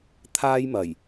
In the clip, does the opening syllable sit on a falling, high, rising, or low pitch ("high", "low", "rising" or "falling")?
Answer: high